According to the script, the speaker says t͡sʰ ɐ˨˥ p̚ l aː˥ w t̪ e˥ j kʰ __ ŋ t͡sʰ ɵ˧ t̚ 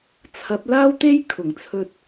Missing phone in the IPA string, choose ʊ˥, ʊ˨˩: ʊ˨˩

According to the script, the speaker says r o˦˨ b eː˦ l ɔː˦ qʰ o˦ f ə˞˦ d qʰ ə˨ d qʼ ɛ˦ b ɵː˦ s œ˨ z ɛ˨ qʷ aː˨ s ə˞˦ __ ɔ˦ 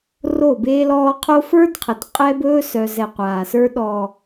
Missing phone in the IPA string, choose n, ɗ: ɗ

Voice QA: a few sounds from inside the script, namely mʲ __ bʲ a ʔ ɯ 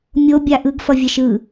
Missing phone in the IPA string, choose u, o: o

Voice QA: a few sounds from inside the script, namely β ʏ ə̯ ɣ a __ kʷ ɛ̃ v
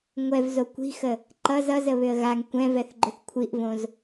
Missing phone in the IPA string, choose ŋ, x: ŋ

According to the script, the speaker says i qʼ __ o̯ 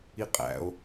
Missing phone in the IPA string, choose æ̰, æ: æ̰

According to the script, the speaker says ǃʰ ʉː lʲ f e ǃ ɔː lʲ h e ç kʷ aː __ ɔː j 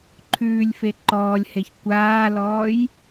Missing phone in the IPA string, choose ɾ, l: l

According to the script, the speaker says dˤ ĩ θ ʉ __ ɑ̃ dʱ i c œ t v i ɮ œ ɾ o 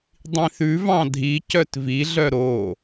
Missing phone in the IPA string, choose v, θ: v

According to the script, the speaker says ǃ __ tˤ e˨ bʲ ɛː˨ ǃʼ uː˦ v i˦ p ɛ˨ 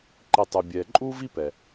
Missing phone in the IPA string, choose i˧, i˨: i˨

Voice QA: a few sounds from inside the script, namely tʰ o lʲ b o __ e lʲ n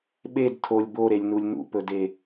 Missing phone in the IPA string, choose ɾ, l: ɾ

